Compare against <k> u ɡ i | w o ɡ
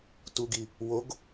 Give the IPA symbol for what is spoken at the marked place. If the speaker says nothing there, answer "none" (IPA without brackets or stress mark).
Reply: t